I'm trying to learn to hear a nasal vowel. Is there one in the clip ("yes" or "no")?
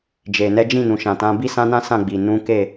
yes